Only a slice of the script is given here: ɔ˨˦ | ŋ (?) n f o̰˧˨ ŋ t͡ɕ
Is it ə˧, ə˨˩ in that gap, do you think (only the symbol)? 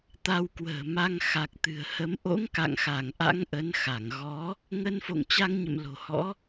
ə˧